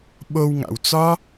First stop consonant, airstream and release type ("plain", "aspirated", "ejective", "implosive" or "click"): implosive